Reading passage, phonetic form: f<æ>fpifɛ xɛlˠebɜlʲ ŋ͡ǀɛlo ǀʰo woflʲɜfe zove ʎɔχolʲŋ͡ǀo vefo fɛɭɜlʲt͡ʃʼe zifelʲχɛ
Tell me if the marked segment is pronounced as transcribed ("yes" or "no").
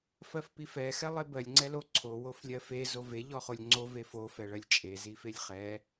no